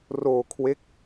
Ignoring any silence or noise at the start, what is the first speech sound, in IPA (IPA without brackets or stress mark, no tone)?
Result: r